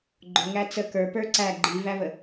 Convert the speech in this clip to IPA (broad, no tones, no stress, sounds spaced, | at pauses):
ɡ͡ǃ ʊ ŋ æ t͡s ə k ə˞ p ə˞ ǀ æ ɡ͡ǃ i v æ v ə